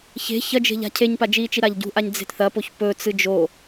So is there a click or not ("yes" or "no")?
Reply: no